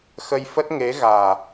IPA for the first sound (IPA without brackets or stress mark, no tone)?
x